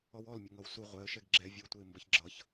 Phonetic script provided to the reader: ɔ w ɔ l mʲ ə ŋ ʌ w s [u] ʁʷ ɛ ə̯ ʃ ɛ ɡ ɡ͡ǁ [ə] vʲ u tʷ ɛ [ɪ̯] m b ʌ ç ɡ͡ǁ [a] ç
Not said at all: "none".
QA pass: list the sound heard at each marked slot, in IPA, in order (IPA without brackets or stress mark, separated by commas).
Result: u, ɛ, ɪ̯, ʌ